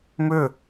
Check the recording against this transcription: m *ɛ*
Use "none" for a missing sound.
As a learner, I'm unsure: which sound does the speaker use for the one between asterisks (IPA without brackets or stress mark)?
ʏ